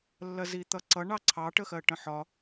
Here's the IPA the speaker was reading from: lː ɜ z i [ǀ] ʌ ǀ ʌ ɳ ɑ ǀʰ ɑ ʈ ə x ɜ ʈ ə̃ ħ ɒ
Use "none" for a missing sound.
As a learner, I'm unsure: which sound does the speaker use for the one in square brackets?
t̪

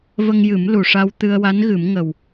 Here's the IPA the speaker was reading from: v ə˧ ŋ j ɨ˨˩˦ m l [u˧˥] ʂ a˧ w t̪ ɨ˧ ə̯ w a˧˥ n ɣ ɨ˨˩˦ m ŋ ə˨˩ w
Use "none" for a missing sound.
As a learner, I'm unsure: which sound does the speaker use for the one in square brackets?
u˨˩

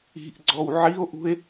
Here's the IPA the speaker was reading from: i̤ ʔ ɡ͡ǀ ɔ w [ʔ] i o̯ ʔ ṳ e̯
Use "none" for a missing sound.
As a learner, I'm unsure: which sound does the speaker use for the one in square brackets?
ʕ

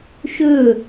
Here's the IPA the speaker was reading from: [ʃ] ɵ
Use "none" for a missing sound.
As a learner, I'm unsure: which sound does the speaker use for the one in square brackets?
ʃ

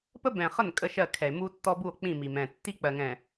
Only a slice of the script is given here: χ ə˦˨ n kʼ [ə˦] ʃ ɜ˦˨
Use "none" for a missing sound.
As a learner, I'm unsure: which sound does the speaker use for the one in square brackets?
ə˦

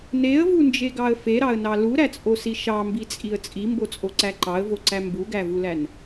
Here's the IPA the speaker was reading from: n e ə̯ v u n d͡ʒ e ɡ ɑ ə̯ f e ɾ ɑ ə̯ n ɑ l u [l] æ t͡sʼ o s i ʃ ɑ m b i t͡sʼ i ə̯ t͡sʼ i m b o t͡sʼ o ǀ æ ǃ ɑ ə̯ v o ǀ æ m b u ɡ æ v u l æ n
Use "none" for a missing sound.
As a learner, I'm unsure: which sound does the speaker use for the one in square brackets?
ɾ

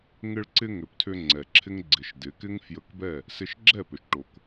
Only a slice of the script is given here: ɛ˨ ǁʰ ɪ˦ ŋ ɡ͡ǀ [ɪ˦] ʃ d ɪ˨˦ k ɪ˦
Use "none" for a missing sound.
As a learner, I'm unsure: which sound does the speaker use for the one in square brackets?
ɪ˨˦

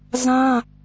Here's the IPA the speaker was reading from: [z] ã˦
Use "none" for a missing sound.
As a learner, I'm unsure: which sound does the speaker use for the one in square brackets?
z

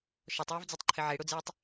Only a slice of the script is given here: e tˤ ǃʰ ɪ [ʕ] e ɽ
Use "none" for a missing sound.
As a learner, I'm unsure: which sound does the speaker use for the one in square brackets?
ʕ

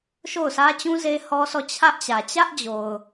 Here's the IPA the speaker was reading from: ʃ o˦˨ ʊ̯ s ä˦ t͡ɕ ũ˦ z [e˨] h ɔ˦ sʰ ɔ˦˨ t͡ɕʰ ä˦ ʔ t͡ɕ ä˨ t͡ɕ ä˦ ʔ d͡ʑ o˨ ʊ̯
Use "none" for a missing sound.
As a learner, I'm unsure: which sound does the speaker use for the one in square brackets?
e˦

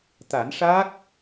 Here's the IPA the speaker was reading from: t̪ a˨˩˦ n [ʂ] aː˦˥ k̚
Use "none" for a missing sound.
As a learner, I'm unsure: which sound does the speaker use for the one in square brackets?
ʂ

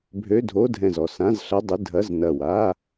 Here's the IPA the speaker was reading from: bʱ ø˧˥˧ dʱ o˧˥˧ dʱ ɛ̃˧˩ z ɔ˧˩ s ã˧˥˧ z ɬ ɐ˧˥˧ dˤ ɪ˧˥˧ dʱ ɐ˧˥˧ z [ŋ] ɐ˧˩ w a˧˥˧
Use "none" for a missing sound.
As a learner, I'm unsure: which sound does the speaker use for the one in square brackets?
n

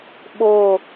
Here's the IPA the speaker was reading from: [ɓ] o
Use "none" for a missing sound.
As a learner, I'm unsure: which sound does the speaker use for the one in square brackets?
ɓ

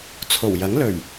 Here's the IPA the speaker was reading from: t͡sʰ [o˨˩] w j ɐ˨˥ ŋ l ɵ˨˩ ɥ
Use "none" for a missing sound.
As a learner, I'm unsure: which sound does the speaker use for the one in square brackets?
o˨˩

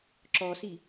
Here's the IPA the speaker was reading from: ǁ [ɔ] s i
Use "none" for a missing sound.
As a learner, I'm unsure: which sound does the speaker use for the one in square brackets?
ɔ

